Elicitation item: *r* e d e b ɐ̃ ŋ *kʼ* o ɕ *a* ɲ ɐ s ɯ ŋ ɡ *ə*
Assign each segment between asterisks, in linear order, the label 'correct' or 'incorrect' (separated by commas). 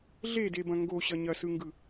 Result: incorrect, incorrect, incorrect, incorrect